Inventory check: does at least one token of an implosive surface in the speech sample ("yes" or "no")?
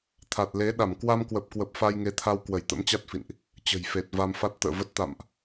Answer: yes